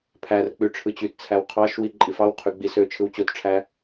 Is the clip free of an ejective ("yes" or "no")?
no